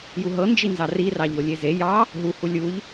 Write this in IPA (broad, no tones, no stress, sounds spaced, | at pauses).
j u ɦ ɤ n d͡ʒ i n z ɑ r i r ɑ ʎ o lʲ e z e j ɑ | ɦ u h u lʲ u ʎ